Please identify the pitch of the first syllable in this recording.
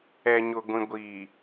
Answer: low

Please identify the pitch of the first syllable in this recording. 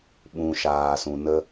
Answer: low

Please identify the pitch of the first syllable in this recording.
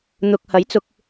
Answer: low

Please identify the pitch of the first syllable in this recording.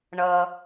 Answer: low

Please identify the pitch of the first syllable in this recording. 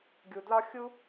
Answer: low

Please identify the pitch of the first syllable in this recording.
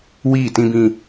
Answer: falling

